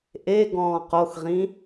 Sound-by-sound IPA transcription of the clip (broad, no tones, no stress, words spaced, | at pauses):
ʔe ɡɔ̃ːqoxʁĩ